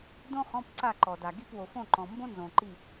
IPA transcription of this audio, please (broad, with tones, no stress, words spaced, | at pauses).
dõ˥χɔ̃˧˥˧pǀa˦˨ ǃɔ˨da˨ ɡi˦˨pwo˨fõ˦˨ ǃɔ̃˨ mbõ˥nzõ˨ǃi˦˨